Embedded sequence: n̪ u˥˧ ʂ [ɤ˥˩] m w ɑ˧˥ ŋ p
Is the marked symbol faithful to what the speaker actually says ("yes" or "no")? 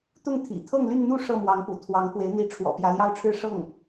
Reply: yes